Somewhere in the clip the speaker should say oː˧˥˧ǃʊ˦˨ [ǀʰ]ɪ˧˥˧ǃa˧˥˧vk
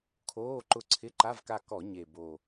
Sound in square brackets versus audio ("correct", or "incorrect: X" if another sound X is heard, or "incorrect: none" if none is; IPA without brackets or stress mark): correct